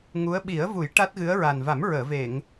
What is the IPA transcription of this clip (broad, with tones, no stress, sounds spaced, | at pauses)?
ŋ u˧˥ ə̯ ɓ i˨˩˦ ə̯ v u˨˩˦ j ʈ a˦˥ t̚ ɣ ɨ˧˥ ə̯ ɹ a˨˩ n v a˨˩˦ m ɹ əː˨˩˨ v e˨˩˨ ŋ